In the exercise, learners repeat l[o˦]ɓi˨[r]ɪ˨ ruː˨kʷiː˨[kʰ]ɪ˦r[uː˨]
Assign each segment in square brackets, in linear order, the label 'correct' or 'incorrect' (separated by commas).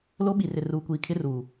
correct, correct, correct, correct